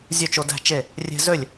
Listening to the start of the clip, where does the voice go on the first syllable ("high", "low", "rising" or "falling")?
falling